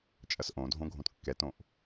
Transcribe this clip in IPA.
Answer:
t͡ʃʼ ɐ s ʔ õ dʱ õ ɡʱ õ t kː ɛ t õ ʔ

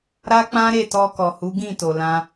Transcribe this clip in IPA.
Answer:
ɾ a˦ k͡p ã˦ ɾ e˦˨ t ɔ˧ k ɔ˨ h u˨˦ ɡ ĩ˦˨ t o˨ l ã˧

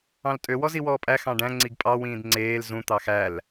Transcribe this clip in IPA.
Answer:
ɑ̃ l tʼ ø w ɔ z i w ɔː pʼ æ x ɑ̃ ɖ æ̃ ŋ͡ǀ i ɡ pʼ ɑ w ĩː d ŋ͡ǀ eː l z ũ t̪ ɑ x æ l

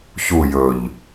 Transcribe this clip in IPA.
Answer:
ç u j ɵ ʎ

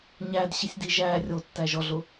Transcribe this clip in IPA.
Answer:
ɲ æ d ɕ i sʲ d i ʒ æ rʲ o tː æ ʒ ɔ ɮ ʊ

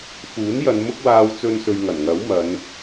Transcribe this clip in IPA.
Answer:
f uː˨˥ n j ɐ˨˧ n m ʊ˥ k̚ w aː˧ w t͡s ɵ˧ n s ɵ˨ ɥ ŋ ɐ˨˩ n ŋ ɐ˨˥ w m ɐ˨˧ n

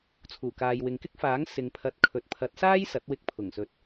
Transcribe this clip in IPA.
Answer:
t͡sʰ uː˨˩ k aː˨ j w ɪ˨ ŋ k ɪ˥ k̚ f aː˨˥ ŋ s ɪ˨ ŋ pʰ ɐ˨˥ t̚ kʰ ɵ˨ t̚ pʰ ɐ˨˥ t̚ s aː˥ j s ɐ˨˥ t̚ w ɪ˧ k̚ pʰ ʊ˨˩ ŋ s ɵ˨˥ t̚

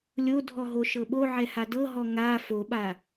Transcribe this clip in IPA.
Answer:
lʲ o dʱ ɔ ɦ o ʃ ɤ ɓ o ʕ ɛ h a d ɤ ɦ ɔ ŋ a f o ɓ a

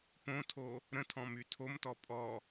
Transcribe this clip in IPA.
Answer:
p õ tʰ o | ɾ ə̃ tʰ ɔ̃ m y tʰ o m t ɔ pʼ ɔ

